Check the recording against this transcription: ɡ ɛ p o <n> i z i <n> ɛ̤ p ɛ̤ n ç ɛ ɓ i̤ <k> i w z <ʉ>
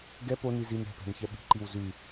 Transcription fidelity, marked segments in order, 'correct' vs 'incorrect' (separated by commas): correct, correct, incorrect, correct